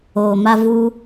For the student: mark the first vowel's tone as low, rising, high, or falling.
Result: low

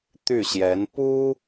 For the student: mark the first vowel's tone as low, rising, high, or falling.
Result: falling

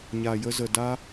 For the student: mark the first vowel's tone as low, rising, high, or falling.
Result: low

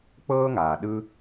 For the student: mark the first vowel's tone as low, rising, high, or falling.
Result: high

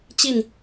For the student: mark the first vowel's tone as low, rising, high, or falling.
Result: falling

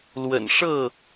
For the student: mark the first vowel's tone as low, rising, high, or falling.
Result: low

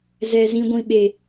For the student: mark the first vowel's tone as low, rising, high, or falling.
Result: low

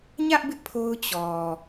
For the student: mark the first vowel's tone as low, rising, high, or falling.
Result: high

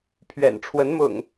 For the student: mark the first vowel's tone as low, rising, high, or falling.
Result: low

